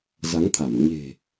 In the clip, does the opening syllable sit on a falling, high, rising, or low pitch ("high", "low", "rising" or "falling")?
rising